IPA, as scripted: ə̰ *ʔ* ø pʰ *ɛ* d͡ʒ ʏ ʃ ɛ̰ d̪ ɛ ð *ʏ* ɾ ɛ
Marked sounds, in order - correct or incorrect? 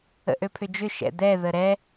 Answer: correct, incorrect: ʏ, incorrect: ə

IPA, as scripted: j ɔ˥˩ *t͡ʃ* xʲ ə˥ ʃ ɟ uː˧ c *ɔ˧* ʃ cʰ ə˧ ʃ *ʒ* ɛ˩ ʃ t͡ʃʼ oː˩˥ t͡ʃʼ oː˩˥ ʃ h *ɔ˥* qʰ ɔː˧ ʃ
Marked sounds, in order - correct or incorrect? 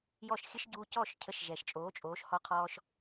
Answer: incorrect: ʃ, incorrect: ɔ˥˩, correct, incorrect: ɔ˧

